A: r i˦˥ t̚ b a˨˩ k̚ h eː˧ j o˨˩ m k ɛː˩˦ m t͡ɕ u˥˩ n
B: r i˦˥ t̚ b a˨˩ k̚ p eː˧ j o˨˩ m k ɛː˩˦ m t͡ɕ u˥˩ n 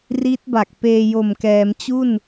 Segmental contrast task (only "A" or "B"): B